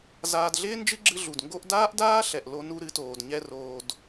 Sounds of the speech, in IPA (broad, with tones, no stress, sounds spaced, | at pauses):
z aː˧ d ɮ ɪː˦ n d͡ʒ ɨ˦ ɡ͡ǁ ɨ˧ ɮ u˨ d ŋ ɡ o˦ ʔ d aː˦ ʔ d aː˦ ɬ ɛ˨ ʔ l o˦ n u˦ ɾ ɨ˨˦ t oː˨ d ɲ ɛ˦ r oː˧ d